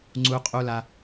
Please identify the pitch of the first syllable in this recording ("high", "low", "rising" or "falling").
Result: high